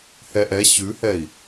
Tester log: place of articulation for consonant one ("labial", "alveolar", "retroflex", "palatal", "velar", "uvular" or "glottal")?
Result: glottal